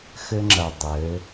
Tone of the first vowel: high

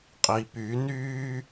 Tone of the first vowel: low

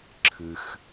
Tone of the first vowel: low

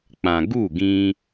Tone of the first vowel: low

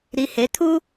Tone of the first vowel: low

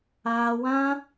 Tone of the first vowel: high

